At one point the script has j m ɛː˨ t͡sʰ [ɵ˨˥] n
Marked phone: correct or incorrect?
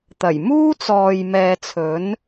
correct